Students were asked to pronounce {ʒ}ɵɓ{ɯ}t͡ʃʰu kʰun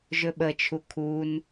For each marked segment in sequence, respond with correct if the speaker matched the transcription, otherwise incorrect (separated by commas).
correct, incorrect